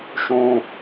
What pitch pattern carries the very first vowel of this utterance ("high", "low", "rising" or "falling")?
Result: low